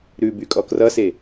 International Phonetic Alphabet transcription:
ɾʉbykʼɔ krʌse

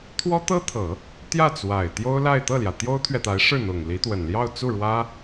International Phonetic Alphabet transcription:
t̪ʰwɔ˥ t̪ɤ˥t̪ʰɤ˨˩˦ | t̪jä˥˩t͡swa˨˩ɪ̯ t̪jo˥ʊ̯la˥˧ɪ̯ t̪ɤ˥˩ljä˩ t̪jo˥ʊ̯t̪ʰɥɛ˨t̪a˧˥ɪ̯ʂɻ̩˥˩ n̪ʊ˨˩ŋli˧˥t̪wə˨˩n ljɑ˥˧ʊ̯t͡su˥˩ɻwä˥

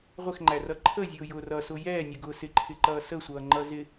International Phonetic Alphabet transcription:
ʁʷɪxŋ͡ǃærʌ ǃʰəzʲʊːjʊː rʌsʊ jɛːnʲəɡʊː sɪǃʰɪǃʌː səsʷʌːŋ͡ǃʌ zɪ

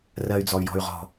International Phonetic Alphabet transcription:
rɜy̯d͡zɔy̯jɔ̤y̯ʁɔ̤

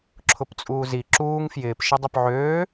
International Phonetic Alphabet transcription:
ǁʰʊpt͡sʼuːzi ǁuːŋ fjɪːp ʃɪdˤʊpʕøː

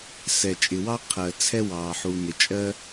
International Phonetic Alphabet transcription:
sɛ˩t͡ʃʼɪ˩wɑ˥ qʰɜ˩ t͡sʰɛ˥wɑː˩ħu˩ nɪ˩ t͡ʃʼɜ˥

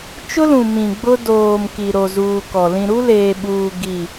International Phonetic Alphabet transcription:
t͡ʃʊ˦lũ˨ mĩ˨ɡ͡bʊ˦ doː˨m ki˨ ɾo˨zuː˨ kɔ˨ lĩ˨ɾu˦leː˨ɓuː˨ ɡi˦˨

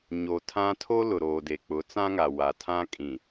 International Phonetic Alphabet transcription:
ɲo˨tʰã˦ tʰo˦ lʊ˨ɾoː˨de˨ k͡pʊ˨˦t͡sã˦ŋa˨ wa˨tʰã˦ kʼĩ˨

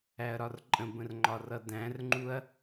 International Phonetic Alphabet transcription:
æɐ̯ɾɒrǃʼə̃bə̃r ŋ͡ǃɒrʌdæ̃rŋ͡ǃuɐ̯

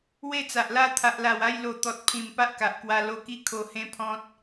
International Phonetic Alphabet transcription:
we˥˧t͡sa˨ʔla˦ t̪ʰa˨ʔla˨˩wa˥˧j lo˧ t̪ɔ˨t̚pʰĩ˨˩m pa˦ʔka˨ʔkwa˧ lo˧ki˦kʰo˧ hẽ˦pʰɔ̃˦t̚

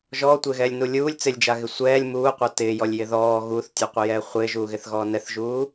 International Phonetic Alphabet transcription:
ʒɔːtʷɪːɣɛːlʲnu lʲuːlʲ t͡sɪlʲd͡ʒaɣɪ sʷɛːlʲ muːqʷa tɪːjɔlʲjɪ ðɔː ɣuːθtʲɔqʷɪjɛː χʷɪːʒuːɣɪθɣɔː nɛθʒuː

